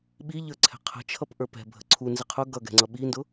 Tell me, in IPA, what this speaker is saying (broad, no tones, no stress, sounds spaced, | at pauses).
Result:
ɓ i ʎ ə˞ ǀʰ ɛ̤ qʰ ə̤ t͡ʃʰ ʌ p ʔ ə˞ p ɛ̤ bʱ ə̤ ǀʰ u n z ɪ qʰ ʊ ɡ ʌ ɡ ɛ̤ ŋ͡ǀ ʌ ɓ i n d ʊ